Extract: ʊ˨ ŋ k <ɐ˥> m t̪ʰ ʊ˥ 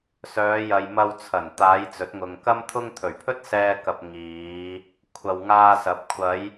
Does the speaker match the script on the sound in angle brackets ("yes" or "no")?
yes